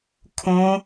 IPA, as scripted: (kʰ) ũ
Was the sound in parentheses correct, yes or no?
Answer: yes